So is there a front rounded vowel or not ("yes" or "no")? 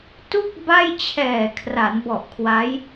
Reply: no